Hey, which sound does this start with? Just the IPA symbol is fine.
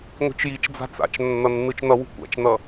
ŋʷ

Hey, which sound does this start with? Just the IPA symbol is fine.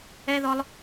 ɛ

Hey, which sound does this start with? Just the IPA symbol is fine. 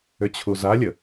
ʏ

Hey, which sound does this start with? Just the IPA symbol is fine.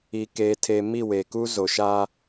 i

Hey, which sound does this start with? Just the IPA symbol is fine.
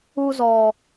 u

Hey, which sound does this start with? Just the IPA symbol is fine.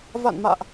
v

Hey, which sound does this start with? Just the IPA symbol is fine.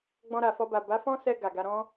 ɡ͡b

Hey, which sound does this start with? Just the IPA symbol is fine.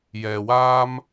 j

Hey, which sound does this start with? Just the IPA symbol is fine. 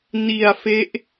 n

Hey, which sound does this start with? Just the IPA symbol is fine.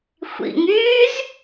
xʷ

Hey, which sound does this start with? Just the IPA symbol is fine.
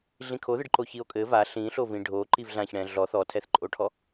ɮ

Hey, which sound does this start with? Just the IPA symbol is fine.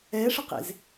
ɛ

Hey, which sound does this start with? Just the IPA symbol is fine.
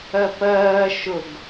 ɜ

